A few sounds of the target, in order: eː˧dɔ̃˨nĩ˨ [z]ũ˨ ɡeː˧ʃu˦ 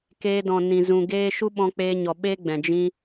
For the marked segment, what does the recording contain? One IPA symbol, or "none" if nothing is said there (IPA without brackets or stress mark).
z